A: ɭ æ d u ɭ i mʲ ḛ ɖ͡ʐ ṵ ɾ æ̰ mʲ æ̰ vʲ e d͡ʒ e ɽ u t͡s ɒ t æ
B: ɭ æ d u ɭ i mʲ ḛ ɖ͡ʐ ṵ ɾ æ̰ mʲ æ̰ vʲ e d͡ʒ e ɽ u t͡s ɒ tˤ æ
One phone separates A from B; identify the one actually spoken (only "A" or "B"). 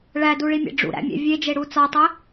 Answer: B